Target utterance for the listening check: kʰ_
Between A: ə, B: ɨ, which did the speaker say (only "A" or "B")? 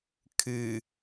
B